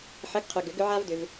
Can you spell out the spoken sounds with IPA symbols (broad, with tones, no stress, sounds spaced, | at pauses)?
ħ ə˨˥ ɡ qʰ ʏ˨ ɡ ʏ˨˩˦ ɡ ʏ˦ ʕ a˦ v d ʏ˨ v